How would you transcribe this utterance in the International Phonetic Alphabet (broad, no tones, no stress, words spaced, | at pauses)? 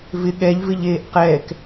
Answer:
vɪ ɠɛʎvɪ ʎeːʔqɛːk